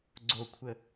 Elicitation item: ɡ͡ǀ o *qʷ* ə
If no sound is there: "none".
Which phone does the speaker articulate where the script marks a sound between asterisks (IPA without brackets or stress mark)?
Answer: kʷʰ